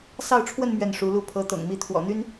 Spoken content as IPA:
s ɑ˥˧ ʊ̯ ʈ͡ʂʰ w ə˥˧ n m ɥ ɛ˥˩ n ʂ u˧˥ l u˥ pʰ ɤ˧˥ t̪ ɤ̰˨˩ ŋ m i˧˥ t̪ʰ w ɔ̰˨˩ n̪ y˥ n

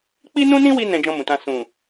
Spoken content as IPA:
k͡p i˦ n ũ˦ n ĩ˦ w i˧ n ɛ̃˧ d͡ʒ ɔ̃˧ m ũ˨ t ã˧ s ũ˨

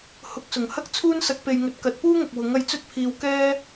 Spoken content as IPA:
h ʊ˨˥ k̚ s ʊ˨˩ ŋ h ɐ˥ k̚ t͡sʰ uː˥ n s ɐ˨˥ k̚ p e˨ j ŋ ɵ˨˥ t̚ k ɐ˨˥ t̚ p uː˥ ŋ ɐ˨ k̚ w ʊ˨˥ ŋ ɐ˧ j t͡s ɵ˥ t̚ pʰ iː˧ w k ɛː˥

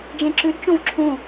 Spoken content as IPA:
d͡ʒ ẽ ǁ ʉ d t͡ʃ õ v ǁʰ ũ

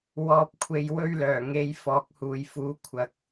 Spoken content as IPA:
w ɔː˨ p̚ kʷʰ e˨ j w ɵ˧ ɥ l œː˨˩ ŋ e˨˧ j f ɔː˨ k̚ h uː˨ j f uː˨˥ kʷʰ ɐ˨ k̚

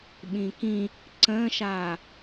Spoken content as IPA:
ɓ ĩ k ĩ | ǀ ə̃ː ʃ aː

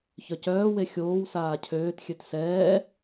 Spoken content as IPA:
ç œ c œː w e xʲ oː w s aː cʰ øː t xʲ ø t s ɛː

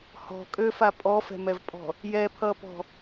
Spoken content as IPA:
h ɔ̤ kʼ ø f a pʼ ɔ f ɛ̤ m ɛ v pʼ ɔ̤ | j ɛ pʰ ʌ p ɔ̤

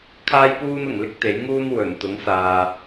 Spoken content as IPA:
kʰ aː˥ j p uː˥ n ʊ˨˩ ŋ l ɪ˥ k̚ t̪ e˨˥ j ŋ uː˥ n w ɵ˨˩ n t̪ ʊ˨˥ ŋ s aː˨

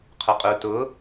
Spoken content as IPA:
qʰ ʊ qʼ u t ʊ

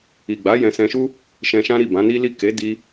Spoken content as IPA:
i˨ ɡ͡b a˨˦ j ɛ̃˧ s ɛ̃˧ ʃ u˦ | ʃ ɛ̃˧ ʃ ã˦ ɾ i˦˨ b ã˨˦ n i˦ l i˦˨ k e˨˦ d i˧

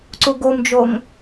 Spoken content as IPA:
ǀ u ɡ o m d͡ʒ o ŋ

